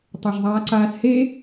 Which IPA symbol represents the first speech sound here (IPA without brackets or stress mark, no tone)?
tˤ